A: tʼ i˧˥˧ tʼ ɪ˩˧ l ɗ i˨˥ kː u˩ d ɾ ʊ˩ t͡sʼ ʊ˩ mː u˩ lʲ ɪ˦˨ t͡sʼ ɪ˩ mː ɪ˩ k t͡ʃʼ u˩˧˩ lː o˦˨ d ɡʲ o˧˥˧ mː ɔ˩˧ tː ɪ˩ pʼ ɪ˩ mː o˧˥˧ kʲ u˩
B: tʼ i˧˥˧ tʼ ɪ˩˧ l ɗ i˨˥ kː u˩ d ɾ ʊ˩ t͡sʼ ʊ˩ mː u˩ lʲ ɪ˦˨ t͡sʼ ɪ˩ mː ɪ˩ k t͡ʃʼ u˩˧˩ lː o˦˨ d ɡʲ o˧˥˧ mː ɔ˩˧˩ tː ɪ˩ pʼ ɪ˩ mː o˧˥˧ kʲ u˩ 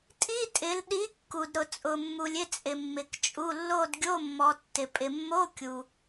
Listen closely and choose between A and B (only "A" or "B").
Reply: A